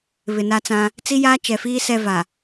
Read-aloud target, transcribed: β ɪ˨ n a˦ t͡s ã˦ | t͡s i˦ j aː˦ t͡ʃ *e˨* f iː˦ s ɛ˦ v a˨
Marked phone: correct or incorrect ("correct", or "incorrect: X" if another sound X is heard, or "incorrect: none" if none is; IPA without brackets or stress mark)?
incorrect: ɛ˨